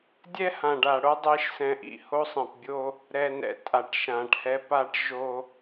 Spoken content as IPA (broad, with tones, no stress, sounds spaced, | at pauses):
dʲ ɛ˦ h ã˨ ɖ a˨ ɽ o˦ dˤ i˦ ʃ s ɛ̃˨ ʔ ḭ˨ h o˦ sˤ ɛ̃˨ p bʲ o˦ | ɾ ɛ˨ n ɛ̰˨ tʼ a˨ ʈ ʃ ã˨ ʈ h ɛ˦ p a˦ ʈ ʒ o˦